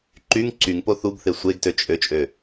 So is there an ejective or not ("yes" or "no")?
yes